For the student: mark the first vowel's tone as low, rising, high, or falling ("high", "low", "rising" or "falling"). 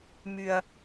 low